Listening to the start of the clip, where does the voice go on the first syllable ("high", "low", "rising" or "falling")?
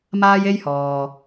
high